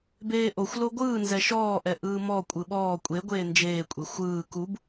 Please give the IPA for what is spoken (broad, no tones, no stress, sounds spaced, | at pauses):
b eː ʔ o xʷ l o ɡʷ ɯː n z ɛ ʃ ɔː ʔ ɛ ʔ ɯː m ɔ kʷʼ ɯ ɓ ɔː kʷʼ e ɡʷ eː n d͡ʒ eː kʷʼ e xʷ ɯː k u b